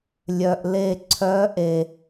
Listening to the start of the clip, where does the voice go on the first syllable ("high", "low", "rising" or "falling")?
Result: low